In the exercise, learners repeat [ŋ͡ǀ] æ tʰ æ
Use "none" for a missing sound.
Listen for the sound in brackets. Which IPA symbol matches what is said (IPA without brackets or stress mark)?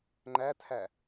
ŋ͡ǃ